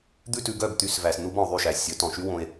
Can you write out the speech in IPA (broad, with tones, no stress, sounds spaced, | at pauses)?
d̪ ʉ˧ t ʉ˨ ɡ œ˦˨ b t̪ y˨˦ s v æ˨ s n u˦ b ɔ̃˨ o̯ ðˤ y˦˨ ʃ æ˨ sʲ ɵ˨˦ t ɔ̃˨ ʃ y˦ w õ˧ e̯